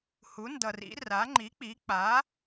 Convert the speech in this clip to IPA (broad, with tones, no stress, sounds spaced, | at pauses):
h u˩˥ n d ʌ˨ r ḭ˩˥ r a˩˥ ŋ͡ǃ i˩˥ k͡p i˩˥ k͡p a˩˥